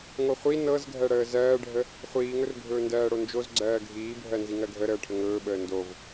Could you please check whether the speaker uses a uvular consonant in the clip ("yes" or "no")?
yes